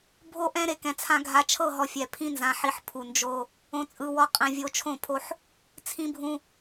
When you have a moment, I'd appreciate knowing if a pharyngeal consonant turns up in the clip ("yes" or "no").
yes